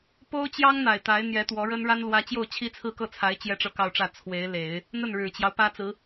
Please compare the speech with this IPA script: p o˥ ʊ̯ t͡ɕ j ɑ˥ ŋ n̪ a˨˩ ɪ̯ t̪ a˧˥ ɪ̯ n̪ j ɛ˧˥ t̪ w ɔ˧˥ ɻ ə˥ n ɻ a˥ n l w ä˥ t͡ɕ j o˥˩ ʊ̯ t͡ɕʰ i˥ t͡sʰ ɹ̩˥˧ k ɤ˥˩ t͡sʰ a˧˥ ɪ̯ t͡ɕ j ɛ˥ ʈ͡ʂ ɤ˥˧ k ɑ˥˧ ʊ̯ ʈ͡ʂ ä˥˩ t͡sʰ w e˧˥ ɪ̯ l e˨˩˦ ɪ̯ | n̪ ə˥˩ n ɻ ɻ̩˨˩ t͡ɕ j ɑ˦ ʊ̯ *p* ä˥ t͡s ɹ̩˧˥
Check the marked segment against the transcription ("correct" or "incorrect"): correct